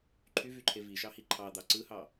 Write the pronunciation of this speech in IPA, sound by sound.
ǃʰ y v y ǃʰ e v i ʃ ɑ h i ǃʰ ɑ d̪ ɑ ǀ ɯ h ɑ

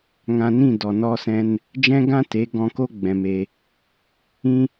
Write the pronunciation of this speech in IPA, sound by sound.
ŋ ã˧ n ĩ˦˨ d ɔ˨ n ɔ˧ s ɛ̃˧ n | d͡ʒ ɛ̃˦ ɡ ã˦ t e˨˦ ɡ ɔ̃˦ k o˦ ɡ͡b ɛ̃˧ m e˧ | ĩ˦

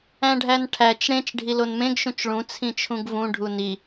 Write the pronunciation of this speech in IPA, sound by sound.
æ̃ ɖʱ æ n ʈʰ æ t͡ʃ ɽ ẽ t͡ʃ ɖʱ i l o n m ẽ ɡ ʃ ũ t͡ʃ ɭ ũ t͡sʰ ĩ t͡ʃʰ ũ ɡ v ũ ɖʱ u n i

